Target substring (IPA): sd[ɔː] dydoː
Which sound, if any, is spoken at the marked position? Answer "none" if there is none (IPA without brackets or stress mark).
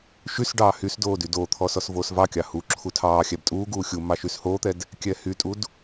oː